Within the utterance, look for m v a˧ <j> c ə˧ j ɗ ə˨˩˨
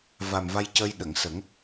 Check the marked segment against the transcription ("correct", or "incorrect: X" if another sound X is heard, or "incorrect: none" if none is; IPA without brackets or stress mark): correct